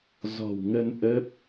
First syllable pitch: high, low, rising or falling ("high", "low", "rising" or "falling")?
low